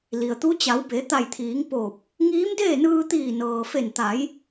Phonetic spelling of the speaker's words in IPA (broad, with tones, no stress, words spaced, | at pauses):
li˩ə̯t̪u˧˥ t͡ɕa˩˧wbe˩˧ t̪a˧˩jt̪ʰiː˩˧ŋ poː˧˩p̚ | ŋiː˧˥mdeː˥˨ nɯː˧t̪iː˧˩nɤː˩fe˧˩n t̪a˩˧j